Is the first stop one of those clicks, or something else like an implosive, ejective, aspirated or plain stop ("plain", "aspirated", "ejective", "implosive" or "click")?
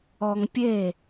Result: plain